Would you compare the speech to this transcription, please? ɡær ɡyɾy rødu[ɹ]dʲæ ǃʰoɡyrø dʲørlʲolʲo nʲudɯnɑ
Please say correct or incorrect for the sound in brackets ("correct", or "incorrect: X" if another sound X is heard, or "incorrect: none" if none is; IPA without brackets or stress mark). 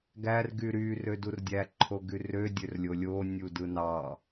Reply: incorrect: r